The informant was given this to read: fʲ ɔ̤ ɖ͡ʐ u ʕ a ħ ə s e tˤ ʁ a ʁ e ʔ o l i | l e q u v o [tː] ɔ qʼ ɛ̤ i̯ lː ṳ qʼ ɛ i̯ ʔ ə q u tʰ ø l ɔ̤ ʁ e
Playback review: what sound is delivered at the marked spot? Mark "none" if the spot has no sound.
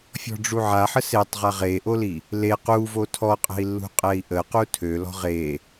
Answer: tʰ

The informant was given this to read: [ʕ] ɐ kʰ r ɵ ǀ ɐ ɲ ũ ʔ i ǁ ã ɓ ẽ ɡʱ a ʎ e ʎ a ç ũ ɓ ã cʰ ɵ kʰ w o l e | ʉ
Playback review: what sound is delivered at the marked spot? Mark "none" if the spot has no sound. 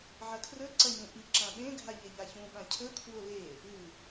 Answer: ʕ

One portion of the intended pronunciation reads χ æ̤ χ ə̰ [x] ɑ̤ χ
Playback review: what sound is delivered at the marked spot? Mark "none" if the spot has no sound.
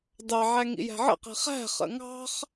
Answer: ŋ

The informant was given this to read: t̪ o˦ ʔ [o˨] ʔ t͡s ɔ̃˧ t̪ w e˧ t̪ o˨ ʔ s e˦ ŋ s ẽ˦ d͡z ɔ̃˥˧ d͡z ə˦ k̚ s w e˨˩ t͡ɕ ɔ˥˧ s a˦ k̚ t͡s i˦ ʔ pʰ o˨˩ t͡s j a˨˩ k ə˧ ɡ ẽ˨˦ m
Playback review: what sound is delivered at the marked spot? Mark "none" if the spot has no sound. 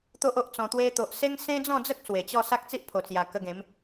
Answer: o˦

